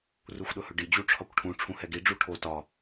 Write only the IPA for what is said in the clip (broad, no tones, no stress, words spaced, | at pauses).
ruxʷɗɵhɵɖi d͡ʑuʈ͡ʂʰɒkʷʈʰũ ʈ͡ʂʰũhɛɡi ɖ͡ʐuʈʰo tɒ